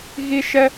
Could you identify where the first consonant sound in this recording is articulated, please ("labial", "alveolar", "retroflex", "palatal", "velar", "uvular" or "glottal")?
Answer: velar